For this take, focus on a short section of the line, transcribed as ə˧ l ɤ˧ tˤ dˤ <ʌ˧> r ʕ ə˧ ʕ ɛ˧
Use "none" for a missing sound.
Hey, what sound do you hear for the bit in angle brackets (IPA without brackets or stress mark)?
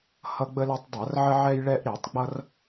ʌ˧˩˧